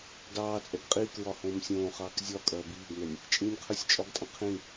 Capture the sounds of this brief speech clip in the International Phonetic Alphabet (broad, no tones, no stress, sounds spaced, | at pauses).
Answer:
d ɑː t͡sʼ ɛ ɡ qʼ iː k ɹ ɒ h õː m sʲ õː χ ɑː k zʲ ɒ kʼ ɐː b iː ɡ n ɛ nʲ | t͡ʃʼ ĩː nʲ qʰ ə˞ sʲ t͡ʃʼ ɒ ɡ tʼ ɐ̃ qʰ ĩ